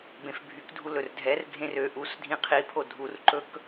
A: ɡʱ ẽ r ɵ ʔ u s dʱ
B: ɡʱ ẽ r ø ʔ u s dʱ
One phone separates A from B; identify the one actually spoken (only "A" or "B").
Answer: B